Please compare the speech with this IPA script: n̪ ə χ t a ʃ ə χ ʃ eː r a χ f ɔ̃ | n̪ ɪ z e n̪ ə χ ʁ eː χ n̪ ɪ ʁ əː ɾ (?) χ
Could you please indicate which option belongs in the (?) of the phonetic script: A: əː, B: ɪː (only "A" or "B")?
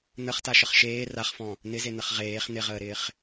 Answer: B